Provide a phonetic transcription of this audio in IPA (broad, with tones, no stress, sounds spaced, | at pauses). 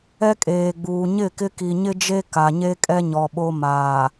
ɛ˦ kʼ eː˨ ɡ͡b uː˨ ɲ ɪ˦˨ k ɪ˦ k i˨ ɲ ɪ˦ d͡ʒ e˦ k a˨ ɲ e˦ kʼ ɛ˦ ɲ ɔ˨ ɓ o˦ m aː˨